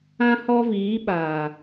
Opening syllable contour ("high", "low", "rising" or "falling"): high